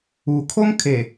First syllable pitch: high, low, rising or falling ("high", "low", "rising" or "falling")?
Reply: low